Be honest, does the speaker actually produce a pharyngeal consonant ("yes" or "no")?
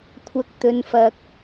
no